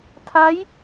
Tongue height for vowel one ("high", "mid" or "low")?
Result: low